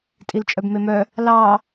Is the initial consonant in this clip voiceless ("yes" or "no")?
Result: yes